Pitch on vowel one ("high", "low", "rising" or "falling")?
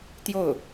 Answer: falling